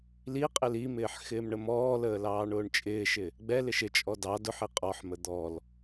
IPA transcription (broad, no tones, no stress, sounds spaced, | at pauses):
l i qʼ ɪ l i m ɪː ħ x ɪː m ɳ ə m ɔː l əː l ɑː ɳ ʊː ɳ t͡ʃʼ ɪː ʃ ɪ | ɡ͡b ɛ l ɪ ʃ ɪ t͡ʃʼ ɔ d ɑ d ʊ ħ i qʼ ɔ ħ m ə d̪ ɔ l